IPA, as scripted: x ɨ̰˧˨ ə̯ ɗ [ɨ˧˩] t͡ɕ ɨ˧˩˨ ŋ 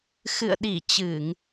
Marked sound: incorrect: i˧˩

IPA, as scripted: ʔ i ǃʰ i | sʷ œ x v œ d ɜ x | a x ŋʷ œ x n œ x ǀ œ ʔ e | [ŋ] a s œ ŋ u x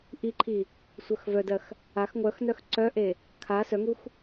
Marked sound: incorrect: kʰ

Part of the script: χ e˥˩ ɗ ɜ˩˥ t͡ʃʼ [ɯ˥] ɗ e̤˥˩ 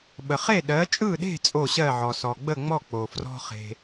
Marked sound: incorrect: ɯ˥˩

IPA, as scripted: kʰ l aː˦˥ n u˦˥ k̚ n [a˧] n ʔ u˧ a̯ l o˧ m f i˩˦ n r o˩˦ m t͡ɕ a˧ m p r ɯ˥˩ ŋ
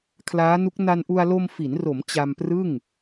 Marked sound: correct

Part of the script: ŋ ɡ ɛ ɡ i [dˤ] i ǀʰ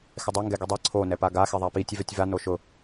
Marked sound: correct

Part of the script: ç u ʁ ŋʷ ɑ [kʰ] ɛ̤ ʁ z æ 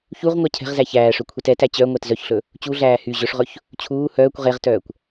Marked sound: incorrect: cʰ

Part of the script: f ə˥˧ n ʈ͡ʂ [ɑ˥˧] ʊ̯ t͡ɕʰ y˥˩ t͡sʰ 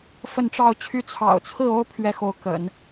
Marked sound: correct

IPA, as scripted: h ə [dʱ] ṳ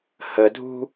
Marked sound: correct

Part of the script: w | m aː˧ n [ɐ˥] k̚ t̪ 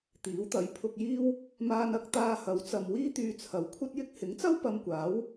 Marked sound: incorrect: ɐ˨˥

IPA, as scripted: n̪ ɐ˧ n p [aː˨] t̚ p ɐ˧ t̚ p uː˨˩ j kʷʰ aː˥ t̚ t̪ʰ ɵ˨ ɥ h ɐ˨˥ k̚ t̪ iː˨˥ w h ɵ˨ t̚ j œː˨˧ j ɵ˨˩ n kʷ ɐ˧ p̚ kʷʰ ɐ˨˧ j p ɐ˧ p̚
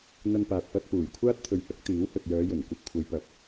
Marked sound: correct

